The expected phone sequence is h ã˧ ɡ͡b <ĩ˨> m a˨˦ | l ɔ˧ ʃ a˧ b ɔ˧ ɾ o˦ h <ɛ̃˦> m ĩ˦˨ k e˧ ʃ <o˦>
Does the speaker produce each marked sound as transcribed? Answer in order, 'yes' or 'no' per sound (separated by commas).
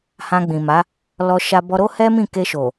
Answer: yes, no, no